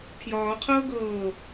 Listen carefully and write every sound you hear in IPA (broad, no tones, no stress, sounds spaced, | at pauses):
pʰ j ɒː qʰ ɤː ɡ ɤː